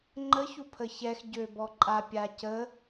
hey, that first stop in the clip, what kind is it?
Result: click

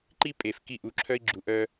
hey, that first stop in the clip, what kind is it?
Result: click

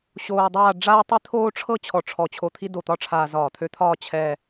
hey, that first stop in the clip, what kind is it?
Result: plain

